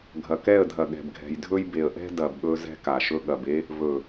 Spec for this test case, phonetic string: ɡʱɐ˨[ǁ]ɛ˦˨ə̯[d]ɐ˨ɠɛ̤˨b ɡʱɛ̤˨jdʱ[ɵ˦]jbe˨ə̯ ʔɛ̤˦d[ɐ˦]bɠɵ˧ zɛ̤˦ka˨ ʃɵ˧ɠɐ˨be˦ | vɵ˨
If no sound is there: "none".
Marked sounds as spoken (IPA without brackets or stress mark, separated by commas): k, dʱ, ɵ˦, ɐ˨